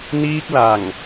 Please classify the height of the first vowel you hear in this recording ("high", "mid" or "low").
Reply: high